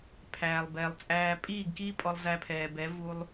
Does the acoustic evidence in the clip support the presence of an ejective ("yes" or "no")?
yes